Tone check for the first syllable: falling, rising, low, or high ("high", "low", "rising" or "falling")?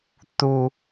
low